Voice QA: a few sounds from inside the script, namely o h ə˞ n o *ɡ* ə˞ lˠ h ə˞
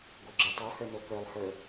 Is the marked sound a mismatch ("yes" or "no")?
yes